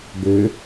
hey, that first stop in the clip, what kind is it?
plain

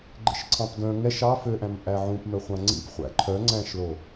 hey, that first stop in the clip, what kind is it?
click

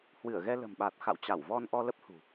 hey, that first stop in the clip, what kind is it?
implosive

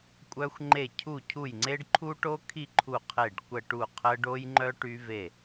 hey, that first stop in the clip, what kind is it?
ejective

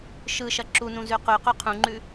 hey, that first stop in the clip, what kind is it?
click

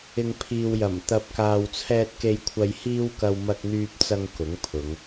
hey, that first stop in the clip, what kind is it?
aspirated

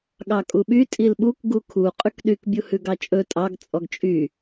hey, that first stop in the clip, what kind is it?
implosive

